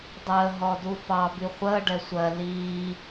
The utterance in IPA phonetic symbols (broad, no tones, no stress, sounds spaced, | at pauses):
dˤ əː ɦ ɔ d u f ɑ b i χʷ əː ɖ ɛ sʷ ɜ l iː